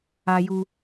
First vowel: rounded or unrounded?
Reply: unrounded